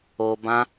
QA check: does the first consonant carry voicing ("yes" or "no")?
yes